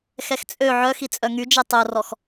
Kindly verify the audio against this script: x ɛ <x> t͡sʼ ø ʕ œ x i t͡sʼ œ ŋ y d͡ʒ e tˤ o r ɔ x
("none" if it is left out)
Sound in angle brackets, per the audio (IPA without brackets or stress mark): x